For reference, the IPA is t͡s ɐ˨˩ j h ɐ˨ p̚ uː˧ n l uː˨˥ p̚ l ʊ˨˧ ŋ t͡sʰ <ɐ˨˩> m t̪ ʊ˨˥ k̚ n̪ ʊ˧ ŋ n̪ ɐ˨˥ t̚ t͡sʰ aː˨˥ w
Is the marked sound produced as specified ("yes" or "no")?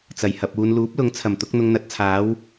yes